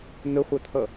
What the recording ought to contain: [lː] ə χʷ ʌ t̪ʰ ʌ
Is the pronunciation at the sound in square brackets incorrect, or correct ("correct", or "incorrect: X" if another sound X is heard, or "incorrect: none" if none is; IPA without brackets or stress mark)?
incorrect: n̪